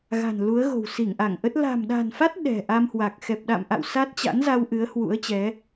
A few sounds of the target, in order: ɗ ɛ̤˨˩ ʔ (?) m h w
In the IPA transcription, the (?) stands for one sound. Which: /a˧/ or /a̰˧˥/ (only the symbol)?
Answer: a˧